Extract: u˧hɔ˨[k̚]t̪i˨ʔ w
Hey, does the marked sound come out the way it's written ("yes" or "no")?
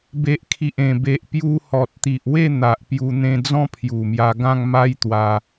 no